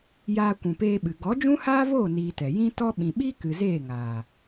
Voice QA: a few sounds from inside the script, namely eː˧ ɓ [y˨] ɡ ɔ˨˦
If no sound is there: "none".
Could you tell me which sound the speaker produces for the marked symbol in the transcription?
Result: ɨ˨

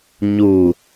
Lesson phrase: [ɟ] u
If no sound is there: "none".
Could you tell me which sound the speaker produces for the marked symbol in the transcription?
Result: ɲ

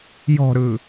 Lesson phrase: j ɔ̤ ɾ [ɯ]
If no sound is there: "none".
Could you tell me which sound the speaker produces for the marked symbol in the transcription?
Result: ɯ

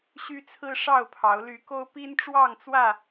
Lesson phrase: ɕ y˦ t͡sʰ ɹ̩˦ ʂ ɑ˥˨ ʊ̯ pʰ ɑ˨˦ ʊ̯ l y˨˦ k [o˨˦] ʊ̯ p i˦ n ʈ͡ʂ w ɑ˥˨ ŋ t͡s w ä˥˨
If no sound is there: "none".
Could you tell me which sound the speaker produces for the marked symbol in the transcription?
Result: o˦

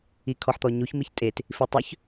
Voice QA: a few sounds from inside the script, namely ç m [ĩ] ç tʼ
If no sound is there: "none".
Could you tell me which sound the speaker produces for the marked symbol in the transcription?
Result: i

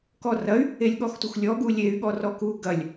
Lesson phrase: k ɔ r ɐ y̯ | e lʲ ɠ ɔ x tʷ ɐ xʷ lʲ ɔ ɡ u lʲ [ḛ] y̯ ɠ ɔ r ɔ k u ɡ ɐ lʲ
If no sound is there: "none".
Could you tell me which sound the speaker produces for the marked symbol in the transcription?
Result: e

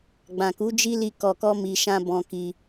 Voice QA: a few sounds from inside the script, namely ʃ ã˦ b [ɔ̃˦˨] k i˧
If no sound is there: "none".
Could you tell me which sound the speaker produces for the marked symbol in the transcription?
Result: ɔ̃˧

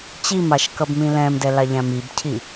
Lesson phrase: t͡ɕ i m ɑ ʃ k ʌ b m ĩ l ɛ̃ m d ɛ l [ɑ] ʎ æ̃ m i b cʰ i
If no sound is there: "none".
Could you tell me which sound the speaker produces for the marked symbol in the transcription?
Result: ɑ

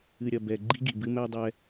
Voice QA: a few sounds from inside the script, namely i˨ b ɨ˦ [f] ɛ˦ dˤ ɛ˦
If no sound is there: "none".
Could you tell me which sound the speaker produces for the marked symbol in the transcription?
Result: m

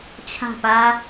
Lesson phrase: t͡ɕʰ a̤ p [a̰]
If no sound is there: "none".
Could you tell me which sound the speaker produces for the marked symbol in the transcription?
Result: a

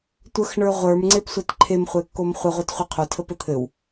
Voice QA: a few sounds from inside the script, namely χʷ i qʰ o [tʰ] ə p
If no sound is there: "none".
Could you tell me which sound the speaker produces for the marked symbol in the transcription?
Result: tʰ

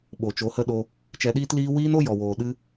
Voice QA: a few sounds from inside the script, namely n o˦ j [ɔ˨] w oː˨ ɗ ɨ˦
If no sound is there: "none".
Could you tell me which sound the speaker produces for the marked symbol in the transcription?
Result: ɔ˨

